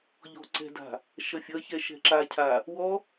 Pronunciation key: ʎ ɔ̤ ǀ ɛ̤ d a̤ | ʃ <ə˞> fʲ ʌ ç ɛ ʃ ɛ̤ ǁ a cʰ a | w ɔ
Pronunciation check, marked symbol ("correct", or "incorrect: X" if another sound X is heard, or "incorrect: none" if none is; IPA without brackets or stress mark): incorrect: ʌ